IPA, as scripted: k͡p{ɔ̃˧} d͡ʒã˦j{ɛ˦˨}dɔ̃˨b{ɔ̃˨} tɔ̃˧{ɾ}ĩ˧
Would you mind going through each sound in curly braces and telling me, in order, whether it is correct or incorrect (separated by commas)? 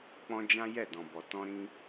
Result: correct, correct, incorrect, correct